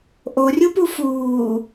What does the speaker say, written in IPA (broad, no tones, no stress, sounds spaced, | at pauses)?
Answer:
ʔ o rʲ u p u f uː